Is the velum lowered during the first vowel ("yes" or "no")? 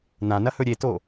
yes